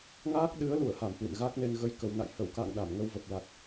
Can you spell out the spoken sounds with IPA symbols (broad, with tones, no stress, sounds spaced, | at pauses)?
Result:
ŋ aː˦˥ k̚ ɗ ɨ˨˦ ə̯ l u˧˩ ə̯ h a˧˩ m h w ḭ˧˨ n ɣ a˦˥ k̚ n e˧ n ɣ ə˧ j k ə˨˩ w n a̰˧˨ j h ə˧˩ w k a̰˧˨ ŋ ɗ a˧˩ m ŋ ə˧ w v ə˨˩ p̚ l a˨˩ t̚